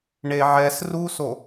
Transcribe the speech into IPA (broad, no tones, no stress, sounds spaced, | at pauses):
ɳ e ʕ ɛ s r u s o